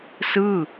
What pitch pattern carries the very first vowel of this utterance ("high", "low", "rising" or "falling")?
falling